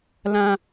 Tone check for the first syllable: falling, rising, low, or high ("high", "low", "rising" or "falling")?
high